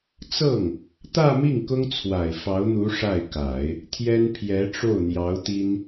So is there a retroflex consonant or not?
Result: yes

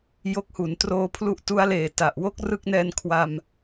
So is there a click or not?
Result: no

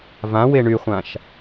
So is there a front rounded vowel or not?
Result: yes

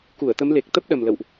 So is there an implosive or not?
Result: yes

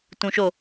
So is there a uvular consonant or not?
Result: no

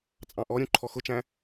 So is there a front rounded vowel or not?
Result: no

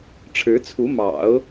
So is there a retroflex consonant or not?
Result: yes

